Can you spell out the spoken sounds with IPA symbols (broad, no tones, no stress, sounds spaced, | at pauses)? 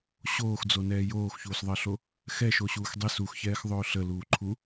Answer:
ɕ oː x d͡z o n ɛː j oː x ç uː s ðˤ ɜ ɬ o | x ɛ ʃ o ɕ uː x dˤ e s u x ç ɛː x ðˤ ɵː ɬ ə l uː ǃʰ u